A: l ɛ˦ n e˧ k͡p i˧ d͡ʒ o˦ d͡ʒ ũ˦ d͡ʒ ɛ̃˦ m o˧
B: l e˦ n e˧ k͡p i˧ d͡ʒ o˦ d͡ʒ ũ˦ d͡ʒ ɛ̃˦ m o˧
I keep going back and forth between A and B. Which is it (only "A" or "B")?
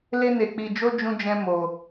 B